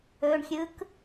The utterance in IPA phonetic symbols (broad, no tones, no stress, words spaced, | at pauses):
ɵɳxʲɯk